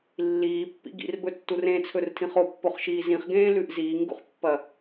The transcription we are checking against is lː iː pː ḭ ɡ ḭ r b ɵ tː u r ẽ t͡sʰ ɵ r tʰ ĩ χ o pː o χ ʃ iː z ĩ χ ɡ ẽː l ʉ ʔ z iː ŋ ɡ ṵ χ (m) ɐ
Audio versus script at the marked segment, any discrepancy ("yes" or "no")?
yes